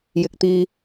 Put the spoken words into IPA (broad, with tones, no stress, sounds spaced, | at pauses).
j ɪ˨ k̚ t̪ iː˧